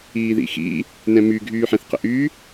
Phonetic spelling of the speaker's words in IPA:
iː ð ḭ x ḭ | n ɛ̃ m y ɡʱ yː ħ ɛ̃ θ q ə̰ ʔ y

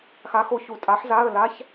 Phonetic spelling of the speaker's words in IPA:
x a˧˥ x o˧ ç u˧˩ tʼ a˧˥ ħ z a˧˥˧ ə̯ l a˧˥˧ ç

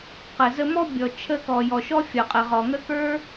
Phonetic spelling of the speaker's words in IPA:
q ə˩ z ə˧ m ɔ˥ bʲ ɔ˩ t͡ʃʰ ə˧ k ɔ˩ j ɔ˩ ʃ ɔ˥ fʲ ɔ˩ qʼ ə˩ ʁ ɔ˩ ŋ ə˥ k ə˞˥

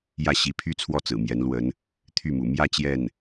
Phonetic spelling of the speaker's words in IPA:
j ä˥˩ ɕ i˧˥ pʰ y˥ t͡sʰ w ɔ˥˩ t͡s ɹ̩˨˩ m j ɛ˧˥ n l w ə˧˥ n | t̪ʰ y˥˩ m ṵ˨˩ m j ä˥˧ t͡ɕ j ɛ˥˩ n

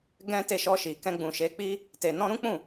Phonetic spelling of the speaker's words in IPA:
ɡ ɛ̃˦ t e˦˨ ʃ ɔ˧ ʃ i˨ k ɛ̃˧ ɡ͡b ũ˨ ʃ e˨˦ k͡p i˦ | t e˨ n ɔ̃˧ ɾ ũ˦ k͡p ũ˦˨

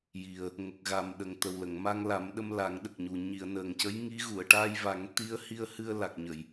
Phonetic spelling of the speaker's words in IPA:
j i˨˩ ə̯ | ŋ ə˨˩ k̚ ɣ a˨˩ m ɗ ə˨˩ ŋ t̪ ə˨˩ w l ə˨˩˨ ŋ m a˧ ŋ l a˨˩˦ m ɗ ə˧ m l a˨˩˦ ŋ ɗ ə˨˩ k̚ ɲ u˨˩ ɲ i˨˩˨ ə̯ n əː˨˩ ŋ c ə˧˥ j ŋ i˧˥ ɣ u˨˩˨ ə̯ ʈ a˧ j v a˨˩˦ ŋ t̪ i˧˥ ə̯ h i˧ ə̯ h ɨ˧ ə̯ l a˨˩ k̚ ɲ ə˨˩˨ j

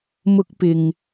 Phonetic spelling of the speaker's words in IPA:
m ʊ˥ k̚ p ɪ˧ ŋ

